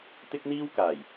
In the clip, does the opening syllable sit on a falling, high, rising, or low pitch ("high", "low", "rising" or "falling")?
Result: high